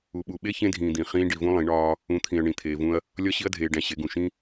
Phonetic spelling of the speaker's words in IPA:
u˧ ɓ u˧ ɓ e˦ ç ẽ˧ dʱ ĩː˨ d̪ ĩ˨ χ ĩː˧ ɖ i˧ v ũ˦ lˠ ĩ˨˦ ɳ ɒː˦ | ũ˨˦ t̪ʰ ĩ˨ ɐ̯ ɳ ĩ˧ t̪ʰ eː˧ v ũ˦ ɐ̯ | lʲ ɒ˦ ɕ i˦ ɐ̯ dʱ eː˧ ɖ æ̃˧ ɕ e˨˦ ɡ ũ˨ ʃ ĩ˦

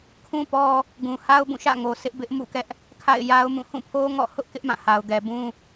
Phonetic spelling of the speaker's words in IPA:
kʰ ũ˦ p ɔ˦ | ɡ ũ˨ h a˦ ʊ̯ b ũ˦˨ ʃ ä̰˦˨ ŋ o˨ s ɪ˦ ʔ b ɪ˦ ʔ m ṵ˦˨ k ɛ˦ ʔ | kʰ a̰˦˨ ɪ̯ j a˦ ʊ̯ m ũ˦˨ h ũ˦˨ pʰ o˦ ŋ ɔ̰˦˨ h ʊ˦ ʔ k ɪ˦ ʔ m ã˦˨ h a˨ ʊ̯ ɡ ɛ˨ b ũ˦

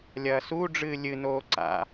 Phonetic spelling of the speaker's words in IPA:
lʲ ɐː s u ɖ͡ʐ ɨː lʲ ɨ n oː ǀ a̰

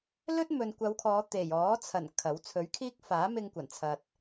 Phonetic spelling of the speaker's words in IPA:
l ɵ˥ t̚ m ɵ˨ n kʷ ɐ˨˧ w kʰ ɔː˨˧ t̪ e˨˩ j ɔː˨˥ t͡sʰ ɐ˨˩ n kʰ ɐ˨˥ w t͡sʰ ɵ˨˥ ɥ kʰ iː˥ k̚ f aː˨˥ m ɪ˧ ŋ kʷ ɐ˨˩ n t͡sʰ ɐ˨ t̚

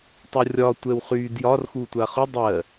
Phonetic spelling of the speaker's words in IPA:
tˤ o rʲ ɒ tʷ ɛ w χ y d j ɒ r x u tʷ a χ ʊ dˤ ɜ

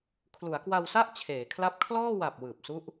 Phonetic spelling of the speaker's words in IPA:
kʰ l u˩˦ a̯ k w a˧ w s a˥˩ ʔ t͡ɕʰ eː˩˦ kʰ l a˦˥ p̚ kʰ l ɔː˥˩ w a˨˩ p̚ w ɯː˨˩ p̚ s u˦˥ ʔ

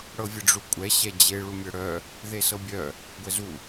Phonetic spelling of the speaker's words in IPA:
ɽ ɤ vʲ ə ɖ͡ʐ u kʷʼ ɛ ɕ ɛ d͡ʑ e ɭ u mʲ ɤ ɽ œ | ð e s ɤ bʲ œ | ɡʷ ɛ z u

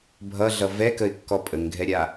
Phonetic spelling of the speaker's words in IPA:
bʱ ʌ ɮ ʌ v ɛ k ə ɪ̯ kː ɔ pʼ ə ŋ ɡʱ ɛ ɾʲ a

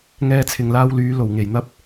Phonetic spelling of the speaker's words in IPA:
ŋ ɛː˧ t͡sʰ ɪ˨ ŋ l aː˧ w l yː˨˧ l o˨˩ w ŋ e˨˩ j n̪ ɐ˥ p̚

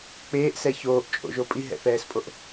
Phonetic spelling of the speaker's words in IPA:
k͡p eː ʔ s ɛ ç oː ʔ t͡ʃʼ o̰ ʒ o pʼ i ɦ ɛ̰ θ ɛː s pʼ o ʔ

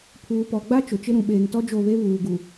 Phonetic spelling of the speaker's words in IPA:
pʰ uː˨ p ɔ˨ ɡ͡b a˦ t͡ʃ ʊ˨ t͡ʃ ɪ˦ ɾ ũ˨ ɓ eː˨ ŋ t ɔ˦ d͡ʒ o˦˨ β e˦ β uː˨ ɡ u˨

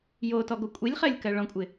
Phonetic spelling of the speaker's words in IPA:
j o t ɔ ɡ o kʷʼ i lʲ χ ɜ lʲ k ɜ ɭ ɔ̃ kʷʼ ɪ

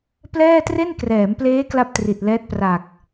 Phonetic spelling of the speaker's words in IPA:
p l ɛː˥˩ t r e˥˩ n k r ɛː˩˦ m p l eː˦˥ k l a˥˩ p̚ t r i˨˩ t̚ l ɛː˦˥ t̚ p r a˨˩ k̚

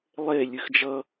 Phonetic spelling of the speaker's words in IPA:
lˠ e lʲ ɨ x d͡ʒ ʌ

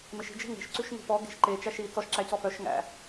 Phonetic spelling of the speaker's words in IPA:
m e ʃ i̤ d͡ʒ e̤ ŋ e̤ ʃ ǀ ʉ ʃ ŋ e̤ p ɔ ɡ e̤ ʃ ǃ e t͡ʃ æ ʃ i t͡s ɔ ʃ ǁ æ c ɔ f œ ʃ ŋ æ̰

